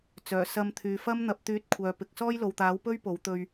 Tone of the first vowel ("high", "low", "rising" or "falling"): low